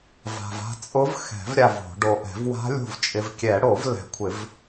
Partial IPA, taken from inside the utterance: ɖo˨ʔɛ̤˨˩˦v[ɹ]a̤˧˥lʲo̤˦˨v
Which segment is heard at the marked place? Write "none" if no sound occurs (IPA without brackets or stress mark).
w